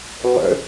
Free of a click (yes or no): yes